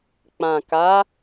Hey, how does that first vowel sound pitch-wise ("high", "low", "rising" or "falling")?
low